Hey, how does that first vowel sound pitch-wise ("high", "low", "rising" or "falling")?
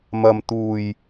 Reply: low